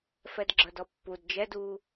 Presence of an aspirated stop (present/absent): absent